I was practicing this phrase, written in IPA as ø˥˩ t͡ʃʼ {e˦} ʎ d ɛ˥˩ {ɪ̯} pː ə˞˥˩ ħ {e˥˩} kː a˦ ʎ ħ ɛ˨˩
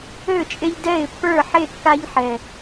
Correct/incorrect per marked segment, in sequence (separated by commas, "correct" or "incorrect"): correct, correct, correct